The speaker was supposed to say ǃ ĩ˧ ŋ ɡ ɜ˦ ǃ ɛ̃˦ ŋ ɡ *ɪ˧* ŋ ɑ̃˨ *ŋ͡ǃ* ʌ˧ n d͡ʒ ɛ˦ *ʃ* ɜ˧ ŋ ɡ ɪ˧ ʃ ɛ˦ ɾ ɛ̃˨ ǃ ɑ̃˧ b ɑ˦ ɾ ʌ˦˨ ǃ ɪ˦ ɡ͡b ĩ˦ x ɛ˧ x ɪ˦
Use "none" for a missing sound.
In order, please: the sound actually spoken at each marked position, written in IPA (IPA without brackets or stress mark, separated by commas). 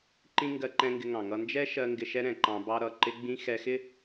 ɪ˧, ŋ, ʃ